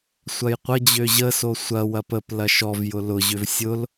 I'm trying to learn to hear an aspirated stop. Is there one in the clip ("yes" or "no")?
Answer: no